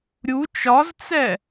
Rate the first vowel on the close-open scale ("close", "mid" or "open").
close